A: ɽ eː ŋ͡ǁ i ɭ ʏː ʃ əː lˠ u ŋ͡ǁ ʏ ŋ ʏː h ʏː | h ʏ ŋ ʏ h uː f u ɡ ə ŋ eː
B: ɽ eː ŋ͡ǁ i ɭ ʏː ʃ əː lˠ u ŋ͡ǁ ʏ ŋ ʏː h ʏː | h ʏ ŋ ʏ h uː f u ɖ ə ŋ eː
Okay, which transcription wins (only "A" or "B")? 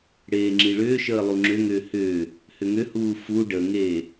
B